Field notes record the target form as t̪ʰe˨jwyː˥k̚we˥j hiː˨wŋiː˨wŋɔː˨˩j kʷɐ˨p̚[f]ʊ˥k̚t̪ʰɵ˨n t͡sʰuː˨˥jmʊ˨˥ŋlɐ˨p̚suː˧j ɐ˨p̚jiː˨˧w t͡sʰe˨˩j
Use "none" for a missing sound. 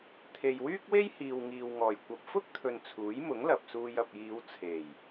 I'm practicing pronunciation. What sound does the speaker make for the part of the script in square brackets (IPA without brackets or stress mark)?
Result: f